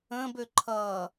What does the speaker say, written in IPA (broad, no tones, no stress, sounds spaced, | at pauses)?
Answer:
ə̃ː b ø ǃʰ ʌː